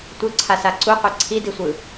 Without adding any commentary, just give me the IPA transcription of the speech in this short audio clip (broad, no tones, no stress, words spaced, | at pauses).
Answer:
tʷɯǀʰa saǀuqʷe ǀʰidisʷɯ